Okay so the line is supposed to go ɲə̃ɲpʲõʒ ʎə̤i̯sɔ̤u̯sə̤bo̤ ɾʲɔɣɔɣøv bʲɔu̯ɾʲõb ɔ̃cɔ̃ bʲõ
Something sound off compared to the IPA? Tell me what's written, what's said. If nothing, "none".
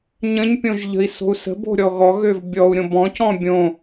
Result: ɔ̤ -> o̤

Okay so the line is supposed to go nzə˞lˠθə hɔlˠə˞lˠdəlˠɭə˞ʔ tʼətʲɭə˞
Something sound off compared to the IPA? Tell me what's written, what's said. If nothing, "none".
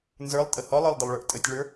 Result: θ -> tʼ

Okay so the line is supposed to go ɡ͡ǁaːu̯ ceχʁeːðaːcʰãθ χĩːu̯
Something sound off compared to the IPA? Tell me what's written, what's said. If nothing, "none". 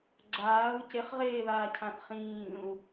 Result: none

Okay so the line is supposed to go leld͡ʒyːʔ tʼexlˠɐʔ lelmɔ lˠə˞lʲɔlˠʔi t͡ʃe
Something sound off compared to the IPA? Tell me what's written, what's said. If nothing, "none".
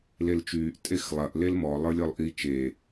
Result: d͡ʒ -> t͡ʃ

